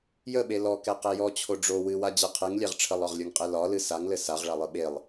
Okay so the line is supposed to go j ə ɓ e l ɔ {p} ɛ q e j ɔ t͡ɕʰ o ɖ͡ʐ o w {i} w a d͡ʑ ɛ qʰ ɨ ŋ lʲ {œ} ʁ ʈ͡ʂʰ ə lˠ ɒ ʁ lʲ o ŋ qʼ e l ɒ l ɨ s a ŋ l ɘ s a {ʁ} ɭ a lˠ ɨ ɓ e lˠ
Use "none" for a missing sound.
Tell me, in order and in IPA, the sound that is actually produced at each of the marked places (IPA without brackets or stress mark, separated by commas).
k, ɨ, ɛ, ʁ